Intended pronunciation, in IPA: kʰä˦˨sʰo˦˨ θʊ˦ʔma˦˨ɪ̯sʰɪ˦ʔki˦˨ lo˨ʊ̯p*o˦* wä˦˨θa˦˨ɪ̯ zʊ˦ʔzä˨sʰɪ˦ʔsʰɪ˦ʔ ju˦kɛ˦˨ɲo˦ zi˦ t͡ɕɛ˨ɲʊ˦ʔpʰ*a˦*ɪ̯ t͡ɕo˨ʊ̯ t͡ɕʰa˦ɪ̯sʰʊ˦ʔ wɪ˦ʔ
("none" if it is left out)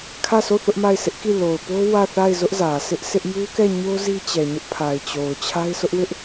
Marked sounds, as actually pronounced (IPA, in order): o˦, a˨

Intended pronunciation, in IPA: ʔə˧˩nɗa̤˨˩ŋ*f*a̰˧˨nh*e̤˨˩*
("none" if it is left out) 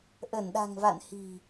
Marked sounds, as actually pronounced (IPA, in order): v, i̤˨˩

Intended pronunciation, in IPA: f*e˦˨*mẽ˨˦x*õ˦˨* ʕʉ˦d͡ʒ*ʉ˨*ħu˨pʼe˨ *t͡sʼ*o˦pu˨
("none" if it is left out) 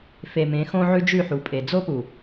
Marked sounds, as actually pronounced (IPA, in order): e˨, õ˦, ʉ˦˨, d͡z

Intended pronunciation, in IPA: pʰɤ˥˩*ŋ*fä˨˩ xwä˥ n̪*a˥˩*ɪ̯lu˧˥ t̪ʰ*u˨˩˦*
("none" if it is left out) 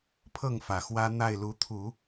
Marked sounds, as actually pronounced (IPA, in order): ŋ, a˥˩, u˨˩˦

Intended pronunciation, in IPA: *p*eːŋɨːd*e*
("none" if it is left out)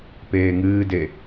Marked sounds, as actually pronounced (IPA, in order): p, e

